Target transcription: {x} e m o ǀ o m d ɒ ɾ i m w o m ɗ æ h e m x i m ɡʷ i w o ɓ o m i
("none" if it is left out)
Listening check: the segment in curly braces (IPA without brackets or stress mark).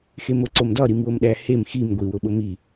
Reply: x